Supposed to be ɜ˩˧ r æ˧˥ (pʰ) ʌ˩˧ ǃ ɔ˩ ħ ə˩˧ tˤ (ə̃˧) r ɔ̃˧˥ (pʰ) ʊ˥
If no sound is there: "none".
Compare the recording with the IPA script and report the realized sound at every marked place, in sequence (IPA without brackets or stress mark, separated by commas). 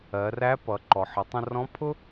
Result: p, ə̃˧, pʰ